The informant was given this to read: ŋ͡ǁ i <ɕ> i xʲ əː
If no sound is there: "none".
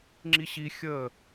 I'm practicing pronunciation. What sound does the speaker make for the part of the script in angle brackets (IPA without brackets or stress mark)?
ɕ